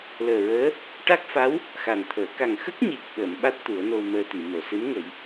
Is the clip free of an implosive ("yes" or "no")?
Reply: no